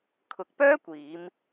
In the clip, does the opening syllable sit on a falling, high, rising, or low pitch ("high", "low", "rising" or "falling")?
rising